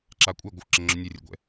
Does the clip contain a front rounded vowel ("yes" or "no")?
yes